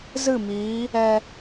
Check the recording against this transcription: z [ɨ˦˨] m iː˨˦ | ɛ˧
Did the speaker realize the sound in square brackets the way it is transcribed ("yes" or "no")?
yes